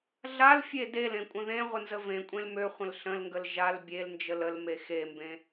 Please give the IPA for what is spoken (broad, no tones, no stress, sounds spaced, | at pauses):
ɮ a l fʲ e d e l ẽ kʷʼ ə̃ ð ẽ ʁʷ ə n z ə v ẽ kʷʼ ẽ l m ø χʷ ə̃ l ɬ ə̃ l ŋ ɡ ə l ʒ a l bʲ e l n d͡ʒ ə l ə l m e x e m b ẽ